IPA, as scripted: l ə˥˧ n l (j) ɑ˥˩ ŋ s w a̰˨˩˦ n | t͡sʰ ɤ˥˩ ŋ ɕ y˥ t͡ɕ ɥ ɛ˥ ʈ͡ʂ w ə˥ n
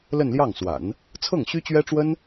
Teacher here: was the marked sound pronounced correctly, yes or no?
yes